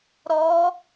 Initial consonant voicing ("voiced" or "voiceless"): voiced